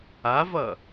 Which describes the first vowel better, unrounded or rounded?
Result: unrounded